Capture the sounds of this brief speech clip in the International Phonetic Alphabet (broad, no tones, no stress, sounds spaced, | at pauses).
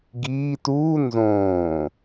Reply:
ɡ iː t uː n z õː